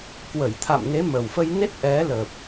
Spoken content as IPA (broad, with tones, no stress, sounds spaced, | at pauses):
k w ə˧˩ j t̪ʰ a̰˧˨ m n e˨˦ m ə˨˩ w f ə˧ j n e˦˥ t̚ ʔ ɛ˨˦ l ə˨˩ p̚